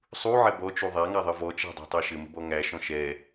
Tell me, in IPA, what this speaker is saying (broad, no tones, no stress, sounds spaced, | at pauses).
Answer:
sˤ u ʕ ɛ b ɔ t͡ʃ u ðˤ æ ŋ a ðˤ ə v ɔ t͡ʃ æ̤ dˤ æ̤ tˤ a ʃ ɘ m ə̤ b ɔ ŋ æ ʃ ɔ̃ ʃ ɛ